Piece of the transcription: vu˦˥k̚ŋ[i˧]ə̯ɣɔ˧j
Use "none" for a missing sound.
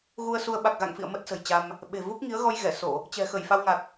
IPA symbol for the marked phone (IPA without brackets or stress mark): i˨˦